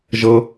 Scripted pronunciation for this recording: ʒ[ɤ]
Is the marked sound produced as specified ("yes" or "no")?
yes